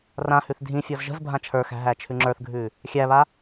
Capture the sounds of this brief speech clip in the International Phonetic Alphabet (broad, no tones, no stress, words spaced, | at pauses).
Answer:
rãhʉθ dʱĩfʲɔz ʒə̤z bʱãt͡ʃʰə˞xæ̤ ɦæt͡ʃʰʉŋ͡ǁə˞θɡʱʉ | xʲæβa